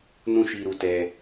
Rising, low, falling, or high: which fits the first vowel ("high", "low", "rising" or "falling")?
high